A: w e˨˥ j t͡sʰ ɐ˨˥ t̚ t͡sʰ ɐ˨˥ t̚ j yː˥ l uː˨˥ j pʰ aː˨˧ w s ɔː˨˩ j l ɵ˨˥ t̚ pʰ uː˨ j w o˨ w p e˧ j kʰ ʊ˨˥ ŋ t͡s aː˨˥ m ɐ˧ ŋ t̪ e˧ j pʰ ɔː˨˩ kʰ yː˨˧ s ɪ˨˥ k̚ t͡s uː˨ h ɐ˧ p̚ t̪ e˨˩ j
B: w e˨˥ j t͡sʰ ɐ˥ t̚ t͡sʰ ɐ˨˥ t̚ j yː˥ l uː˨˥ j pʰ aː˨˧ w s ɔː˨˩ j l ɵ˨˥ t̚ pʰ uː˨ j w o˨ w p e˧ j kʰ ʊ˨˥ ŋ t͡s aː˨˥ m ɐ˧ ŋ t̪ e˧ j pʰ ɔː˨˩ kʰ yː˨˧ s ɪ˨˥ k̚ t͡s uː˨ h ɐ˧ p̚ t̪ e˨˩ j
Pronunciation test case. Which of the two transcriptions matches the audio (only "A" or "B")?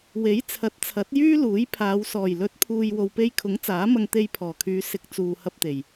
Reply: A